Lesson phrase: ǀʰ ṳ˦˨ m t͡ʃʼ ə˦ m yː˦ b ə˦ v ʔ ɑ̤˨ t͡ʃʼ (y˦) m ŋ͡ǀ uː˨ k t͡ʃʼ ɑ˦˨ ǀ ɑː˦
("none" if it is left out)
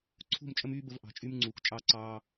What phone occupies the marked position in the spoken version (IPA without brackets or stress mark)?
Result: y˦